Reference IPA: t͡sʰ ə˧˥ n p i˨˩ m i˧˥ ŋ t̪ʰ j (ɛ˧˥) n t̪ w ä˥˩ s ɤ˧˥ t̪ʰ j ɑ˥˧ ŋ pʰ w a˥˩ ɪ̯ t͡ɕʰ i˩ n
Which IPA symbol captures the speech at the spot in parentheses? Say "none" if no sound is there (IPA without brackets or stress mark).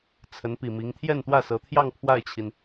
ɛ˥˧